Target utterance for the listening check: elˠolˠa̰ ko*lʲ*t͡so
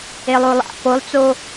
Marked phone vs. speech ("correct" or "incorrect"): incorrect